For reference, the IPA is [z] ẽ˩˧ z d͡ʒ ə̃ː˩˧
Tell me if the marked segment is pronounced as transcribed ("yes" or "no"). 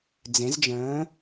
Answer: no